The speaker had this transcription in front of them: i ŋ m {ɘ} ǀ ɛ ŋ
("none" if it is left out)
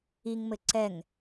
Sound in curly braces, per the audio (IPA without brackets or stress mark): ɘ